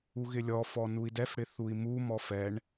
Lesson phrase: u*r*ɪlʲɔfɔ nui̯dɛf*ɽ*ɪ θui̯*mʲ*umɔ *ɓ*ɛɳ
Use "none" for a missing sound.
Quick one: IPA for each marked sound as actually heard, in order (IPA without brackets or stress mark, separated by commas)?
ɣ, ɽ, m, f